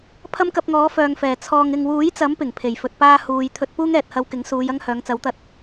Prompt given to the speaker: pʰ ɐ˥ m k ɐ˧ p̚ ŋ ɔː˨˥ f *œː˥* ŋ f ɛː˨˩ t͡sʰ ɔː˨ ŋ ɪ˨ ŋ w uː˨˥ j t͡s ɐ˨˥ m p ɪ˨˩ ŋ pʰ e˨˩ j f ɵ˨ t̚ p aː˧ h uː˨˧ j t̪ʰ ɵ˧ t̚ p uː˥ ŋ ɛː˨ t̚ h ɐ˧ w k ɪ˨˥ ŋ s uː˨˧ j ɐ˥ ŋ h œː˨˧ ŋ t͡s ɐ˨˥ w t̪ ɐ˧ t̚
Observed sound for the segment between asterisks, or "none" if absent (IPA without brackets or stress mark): œː˨